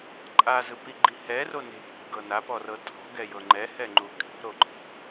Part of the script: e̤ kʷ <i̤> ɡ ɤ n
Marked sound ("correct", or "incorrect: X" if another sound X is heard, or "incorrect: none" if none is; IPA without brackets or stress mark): incorrect: e̤